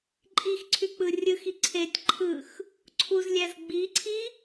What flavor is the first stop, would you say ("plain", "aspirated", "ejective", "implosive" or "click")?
click